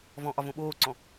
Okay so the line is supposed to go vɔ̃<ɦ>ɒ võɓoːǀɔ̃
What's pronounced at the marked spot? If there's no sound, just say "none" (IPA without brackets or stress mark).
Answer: ʔ